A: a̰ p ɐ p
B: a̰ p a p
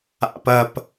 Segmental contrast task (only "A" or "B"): A